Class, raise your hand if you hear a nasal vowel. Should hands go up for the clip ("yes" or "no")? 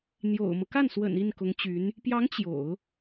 no